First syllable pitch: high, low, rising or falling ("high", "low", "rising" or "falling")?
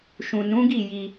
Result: low